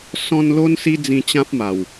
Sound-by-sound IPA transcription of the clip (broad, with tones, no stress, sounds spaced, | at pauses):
s ɔ̃˧ n l o˦ n s i˦ d͡z ĩ˧ t͡ɕ ã˦ p̚ m a˨˩ w